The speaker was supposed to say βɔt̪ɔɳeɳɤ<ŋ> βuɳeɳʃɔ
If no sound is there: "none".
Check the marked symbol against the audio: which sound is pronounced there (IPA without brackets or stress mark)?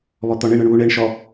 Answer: ɳ